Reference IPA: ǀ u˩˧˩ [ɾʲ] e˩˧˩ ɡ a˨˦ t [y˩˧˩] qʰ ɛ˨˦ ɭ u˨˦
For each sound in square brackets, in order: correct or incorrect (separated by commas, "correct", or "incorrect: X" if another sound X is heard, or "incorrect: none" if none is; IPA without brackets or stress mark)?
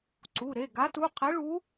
incorrect: ɾ, incorrect: u˩˧˩